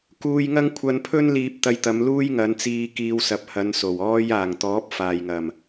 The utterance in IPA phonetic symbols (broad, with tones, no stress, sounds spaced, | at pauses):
k uː˧ j ŋ ɐ˥ ŋ kʷʰ ɐ˧ n pʰ ɵ˥ n l iː˧ p̚ t̪ ɐ˧ j t̪ ɐ˨˧ m l uː˥ j ŋ ɐ˨˧ n t͡s iː˧ k iː˧ w s ɐ˨˥ p̚ h ɐ˨˧ n s o˨˩ w ɔː˥ j aː˨˩ ŋ t̪ ɔː˨˥ p̚ f aː˨ j ŋ ɐ˨˩ m